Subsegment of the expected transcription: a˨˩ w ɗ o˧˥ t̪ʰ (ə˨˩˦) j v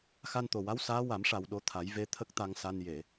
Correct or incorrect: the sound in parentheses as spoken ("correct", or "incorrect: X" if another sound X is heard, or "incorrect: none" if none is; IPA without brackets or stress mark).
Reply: incorrect: a˨˩˦